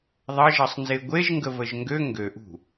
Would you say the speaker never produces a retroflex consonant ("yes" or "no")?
yes